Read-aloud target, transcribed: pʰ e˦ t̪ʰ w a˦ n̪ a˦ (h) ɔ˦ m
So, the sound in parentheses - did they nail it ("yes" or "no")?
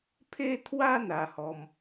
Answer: yes